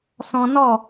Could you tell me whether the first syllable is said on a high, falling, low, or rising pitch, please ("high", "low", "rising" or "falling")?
high